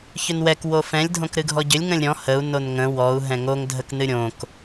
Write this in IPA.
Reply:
ç ʏ n w ɛ k w o f ɛ̃ lʲ dʱ õ k ɾ ɨ ɡʱ ɔ ɟ ʏ lʲ ŋ ə̃ lʲ ɾʲ ɔ̃ h ə u̯ n o n ŋ ə̃ w ɔ u̯ ɦ ɛ̃ ŋ o ŋ dʱ ə k n ɨ ɾʲ õ k

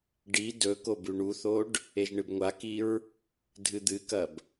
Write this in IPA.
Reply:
ɖ i d ɵ k o b ʉ ɳ u θ o ɖ | e ʒ ɳ ɨ b ŋʷ a k i ɹ | dʱ ɨ d̪ ɨ k ɐ b

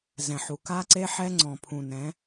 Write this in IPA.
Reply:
z ɛ̃˨ ħ u˨ k a˦ ǀ e˦ ħ ɛ˦ ŋ͡ǀ ɔ̃˨ pʰ ũ˨ n ɛ̃˨˦

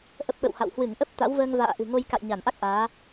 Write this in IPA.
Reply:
ʔ ə˦˥ p̚ ɓ ə̰˧˨ w h a̰˧˨ w h w ɨ˧˩ ŋ ʔ ə˦˥ p̚ t̪ a̰˧˥ w v əː˧ ŋ v a̰ː˧˨ ʔ ɨ̤˨˩ ŋ o˧ j k a̰˧˨ j ɲ a˧˩ n ʔ a˦˥ k̚ ʔ aː˨˦

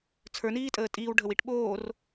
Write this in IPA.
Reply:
t͡sʰ ə˞ n iː tʼ əː tʼ iː w ɖʱ ə w i ʈ ɓ oː r

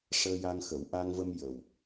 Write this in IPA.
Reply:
ʂ əː˧ j a˧ ŋ x ə˨˩˦ w ʔ a˧ ŋ v ə˧ m j ə˨˩ w

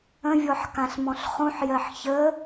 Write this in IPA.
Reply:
ə̃ vʲ ɔ ħ k ã ɬ m ɔ̃ ɬ χ ũ ħ j ɜ ħ ç ə

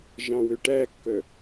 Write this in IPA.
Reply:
ʒ ɑ̃ w ø ʈ æ kː œ

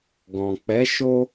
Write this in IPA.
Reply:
ɡ ɔ̃˨ k͡p ɛ˨˦ ʃ o˧

